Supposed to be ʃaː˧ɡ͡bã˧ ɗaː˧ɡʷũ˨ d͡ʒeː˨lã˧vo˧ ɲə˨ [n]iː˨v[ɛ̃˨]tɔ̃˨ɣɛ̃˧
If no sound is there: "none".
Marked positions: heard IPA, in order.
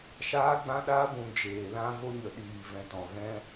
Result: ɗ, ɛ̃˨

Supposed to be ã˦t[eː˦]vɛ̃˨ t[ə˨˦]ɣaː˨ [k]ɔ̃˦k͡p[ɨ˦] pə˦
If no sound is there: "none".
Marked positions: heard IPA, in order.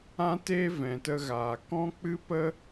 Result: eː˦, ə˧, k, ɨ˦

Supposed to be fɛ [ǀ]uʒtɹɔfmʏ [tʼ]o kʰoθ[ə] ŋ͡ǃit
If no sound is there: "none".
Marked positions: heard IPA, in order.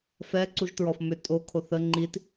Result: ǀ, tʼ, ə

